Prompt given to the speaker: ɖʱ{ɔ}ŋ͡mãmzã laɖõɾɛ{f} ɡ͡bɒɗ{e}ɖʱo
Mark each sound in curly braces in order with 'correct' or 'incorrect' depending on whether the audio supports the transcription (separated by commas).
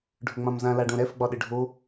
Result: incorrect, correct, incorrect